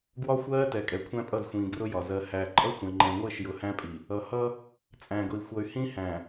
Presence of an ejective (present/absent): present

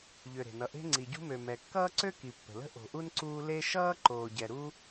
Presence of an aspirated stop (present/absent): absent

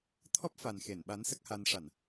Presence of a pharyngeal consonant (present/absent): absent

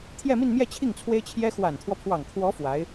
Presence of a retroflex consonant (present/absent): absent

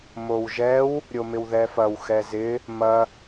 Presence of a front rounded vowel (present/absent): absent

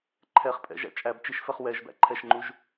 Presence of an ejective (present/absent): present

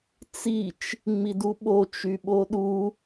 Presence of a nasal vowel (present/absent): absent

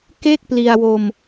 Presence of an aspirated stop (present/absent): absent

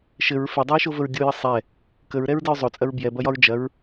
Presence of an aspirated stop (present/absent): absent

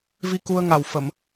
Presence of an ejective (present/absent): absent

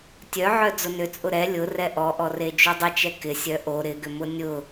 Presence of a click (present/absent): absent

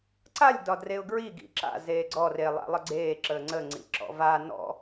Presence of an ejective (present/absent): absent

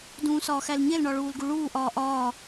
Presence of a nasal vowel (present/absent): present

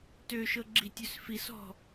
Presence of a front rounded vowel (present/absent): present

